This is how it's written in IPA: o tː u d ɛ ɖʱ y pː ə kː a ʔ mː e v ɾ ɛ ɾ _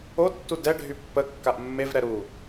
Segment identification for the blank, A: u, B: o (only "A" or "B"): A